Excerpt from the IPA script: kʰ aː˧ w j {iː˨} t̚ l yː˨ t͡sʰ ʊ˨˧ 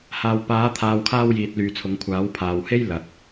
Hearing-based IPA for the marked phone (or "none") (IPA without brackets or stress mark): iː˨